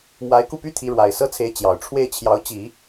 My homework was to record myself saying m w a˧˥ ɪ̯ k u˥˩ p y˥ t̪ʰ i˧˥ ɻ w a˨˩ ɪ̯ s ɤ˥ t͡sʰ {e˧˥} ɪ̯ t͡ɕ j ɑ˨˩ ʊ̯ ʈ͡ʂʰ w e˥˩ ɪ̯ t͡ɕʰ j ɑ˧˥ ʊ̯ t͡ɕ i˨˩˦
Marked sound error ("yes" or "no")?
no